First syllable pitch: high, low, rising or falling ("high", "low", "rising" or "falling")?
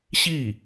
falling